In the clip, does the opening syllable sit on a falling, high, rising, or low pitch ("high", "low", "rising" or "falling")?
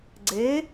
rising